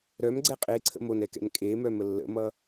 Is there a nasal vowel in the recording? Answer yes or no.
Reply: no